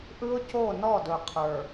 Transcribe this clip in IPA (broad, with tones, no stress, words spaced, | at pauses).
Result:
ʔɯ˦ʊ̯co˦˨ nɔ˦˨dɵ˨qʰə˞˨